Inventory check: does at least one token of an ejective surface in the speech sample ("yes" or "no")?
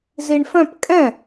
yes